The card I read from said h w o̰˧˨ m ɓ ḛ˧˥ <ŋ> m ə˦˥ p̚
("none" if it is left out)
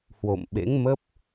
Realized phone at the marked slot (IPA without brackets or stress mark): ŋ